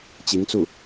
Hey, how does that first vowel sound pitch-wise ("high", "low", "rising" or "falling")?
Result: rising